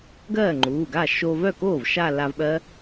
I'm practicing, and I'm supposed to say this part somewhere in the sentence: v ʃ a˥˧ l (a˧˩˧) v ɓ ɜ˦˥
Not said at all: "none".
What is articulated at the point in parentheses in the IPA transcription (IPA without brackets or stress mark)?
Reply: a˧